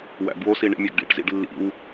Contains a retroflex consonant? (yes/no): yes